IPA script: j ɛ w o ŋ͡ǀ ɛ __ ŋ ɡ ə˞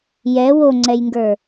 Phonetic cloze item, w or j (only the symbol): j